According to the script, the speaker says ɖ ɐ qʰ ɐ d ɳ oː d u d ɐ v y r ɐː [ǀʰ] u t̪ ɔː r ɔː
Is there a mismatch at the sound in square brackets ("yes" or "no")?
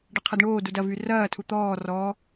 yes